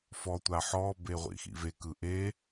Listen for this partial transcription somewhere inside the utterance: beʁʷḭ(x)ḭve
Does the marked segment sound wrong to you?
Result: no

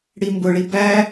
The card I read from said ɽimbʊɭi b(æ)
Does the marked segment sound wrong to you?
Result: no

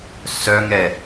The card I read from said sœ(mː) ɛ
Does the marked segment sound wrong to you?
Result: yes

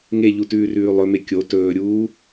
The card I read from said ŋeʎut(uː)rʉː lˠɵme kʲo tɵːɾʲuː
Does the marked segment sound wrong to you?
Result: yes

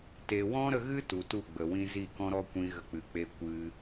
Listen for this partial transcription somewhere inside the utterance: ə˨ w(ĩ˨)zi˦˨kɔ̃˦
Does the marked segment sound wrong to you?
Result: yes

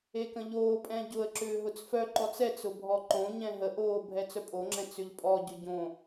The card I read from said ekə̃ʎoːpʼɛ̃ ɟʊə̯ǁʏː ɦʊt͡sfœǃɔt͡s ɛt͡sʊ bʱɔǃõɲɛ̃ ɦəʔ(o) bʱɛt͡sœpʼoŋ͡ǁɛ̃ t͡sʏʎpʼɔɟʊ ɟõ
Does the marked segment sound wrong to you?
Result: yes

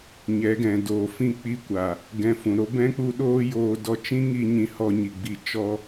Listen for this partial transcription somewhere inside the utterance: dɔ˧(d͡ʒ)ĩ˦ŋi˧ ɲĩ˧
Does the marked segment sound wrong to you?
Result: yes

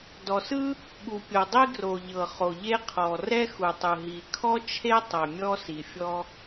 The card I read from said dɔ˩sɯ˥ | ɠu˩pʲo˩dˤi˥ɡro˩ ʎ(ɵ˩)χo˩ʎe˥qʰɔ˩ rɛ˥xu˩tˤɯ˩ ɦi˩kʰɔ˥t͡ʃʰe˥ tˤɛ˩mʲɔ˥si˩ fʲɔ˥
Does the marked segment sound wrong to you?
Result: yes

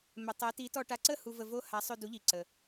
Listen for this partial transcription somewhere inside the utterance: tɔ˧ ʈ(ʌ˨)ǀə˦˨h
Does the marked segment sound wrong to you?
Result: yes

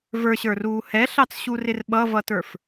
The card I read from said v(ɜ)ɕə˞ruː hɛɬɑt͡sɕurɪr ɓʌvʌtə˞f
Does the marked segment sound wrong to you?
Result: yes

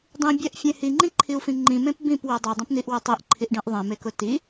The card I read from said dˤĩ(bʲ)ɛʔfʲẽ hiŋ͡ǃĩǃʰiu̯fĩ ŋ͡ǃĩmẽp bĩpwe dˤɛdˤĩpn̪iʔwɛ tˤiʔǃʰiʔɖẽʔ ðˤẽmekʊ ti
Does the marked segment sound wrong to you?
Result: no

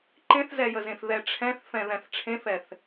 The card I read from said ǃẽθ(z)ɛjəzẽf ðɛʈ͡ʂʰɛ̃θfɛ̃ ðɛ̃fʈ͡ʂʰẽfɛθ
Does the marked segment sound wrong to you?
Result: no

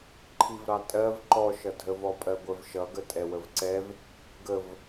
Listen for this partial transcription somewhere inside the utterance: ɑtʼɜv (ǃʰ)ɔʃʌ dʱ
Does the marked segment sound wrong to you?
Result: yes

